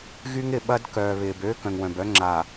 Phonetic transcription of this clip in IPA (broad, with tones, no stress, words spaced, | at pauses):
ɣy˦ŋɪ˨ ɓɐ˦d kœː˨βɪː˨b ø˦ kœ̃˨ŋwœ̃˨bœ˦ ŋ͡ǁaː˨